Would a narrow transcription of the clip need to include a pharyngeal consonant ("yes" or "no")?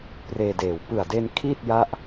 no